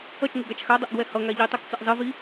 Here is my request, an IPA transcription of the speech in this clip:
ʌ t͡ʃ ŋ e ɡ a t͡ʃ x a dˤ ʌ ʔ ɡ w ɛ h ʌ ŋ a ʎ i tˤ u k t͡s ɯ ʔ zˤ ɯ v i

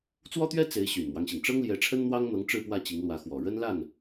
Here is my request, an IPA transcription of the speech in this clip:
t͡s w ɔ˥ t̪ ɥ ɛ˥ t͡s e˧˥ ɪ̯ ɕ y˨˩ n m w ɑ˦ ŋ ɕ i˩ ŋ ʈ͡ʂ ɤ˥ ŋ l j ɛ˧˥ ʈ͡ʂʰ ə˥ n n̪ w ɑ˥ ŋ n̪ ɤ˧˥ ŋ ʈ͡ʂ ɻ̩˥˧ p w ä˥˩ t͡ɕ i˧˥ ŋ l w ä˧˥ x w ɔ˨˩ ɻ ə˥ n l a˥˩ n

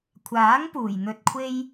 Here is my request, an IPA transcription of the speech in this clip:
kʷʰ aː˨˥ ŋ p uː˨˩ j n̪ ɵ˧ t̚ kʷʰ e˥ j

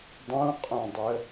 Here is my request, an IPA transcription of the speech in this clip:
dˤ ũ qʼ õ dˤ ə

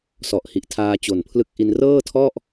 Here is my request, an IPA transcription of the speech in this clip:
s ɔ˨˩ ʔ h i˨˩ ʔ tʰ aː˧ t͡ɕ o˨˩ n pʰ l ɯ˦˥ k̚ ʔ i˧ n r ɤː˥˩ tʰ ɔ˥˩ ʔ

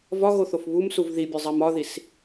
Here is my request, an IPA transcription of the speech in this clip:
v ɒ ɣ o θ o f β u m s u v ð i bʲ ɒ zˤ æ m ɒ ð i s

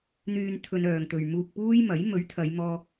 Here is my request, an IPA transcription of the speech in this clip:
n̪ yː˨ n t̪ʰ ɵ˧ n œː˨ ŋ t̪ ɵ˨ ɥ m uː˧ k̚ p uː˥ j m ɐ˨˥ j m ɵ˨˥ ɥ t̪ʰ ɐ˨˧ j m ɔː˧

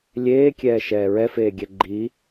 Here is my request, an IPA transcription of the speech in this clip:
lʲ eː kʲ ɛː ʃ ɛː ɹ ɛ f eː ɡʲ ɛ ɡ͡ǃ i

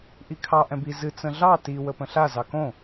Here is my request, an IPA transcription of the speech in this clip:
ʔ i kʰ ɑ ʔ ɛ̃ b i z ɨ t͡s ə̃ ɮ ɑ t i w ə p ə̃ ɬ a z ɑ k õ

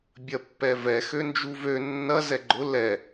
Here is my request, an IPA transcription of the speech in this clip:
bʲ ɐ pː ɛ v ɛ x ø n d͡ʒ u v ø nː ɐ z ɛ ɡ͡ǃ ʊ l ɛ

